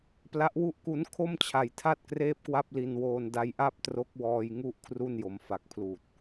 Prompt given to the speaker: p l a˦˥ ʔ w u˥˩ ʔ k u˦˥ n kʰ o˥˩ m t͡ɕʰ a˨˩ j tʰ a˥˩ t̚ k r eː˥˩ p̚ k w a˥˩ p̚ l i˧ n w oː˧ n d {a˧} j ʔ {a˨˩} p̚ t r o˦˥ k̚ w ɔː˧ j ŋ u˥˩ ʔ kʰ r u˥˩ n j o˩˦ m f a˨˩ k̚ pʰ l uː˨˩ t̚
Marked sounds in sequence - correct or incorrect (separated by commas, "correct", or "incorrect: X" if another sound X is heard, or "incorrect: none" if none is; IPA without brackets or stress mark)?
correct, incorrect: a˥˩